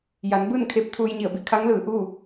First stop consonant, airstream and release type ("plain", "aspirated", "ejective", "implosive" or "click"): plain